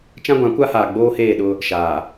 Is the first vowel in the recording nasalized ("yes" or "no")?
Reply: yes